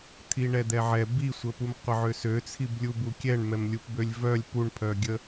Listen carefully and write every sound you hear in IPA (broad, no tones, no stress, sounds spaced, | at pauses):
t̪ʰ i ɳ ɛ d̪ ɛ ʕ ɛ b i sʷ ə p u m qʷ ə ʕ ø s ø t͡sʰ i b lʲ u b u kʲ ɛ ɳ m ɛ m lʲ u p b ø lʲ v œ lʲ p u ɳ pʰ œ ɡʲ ə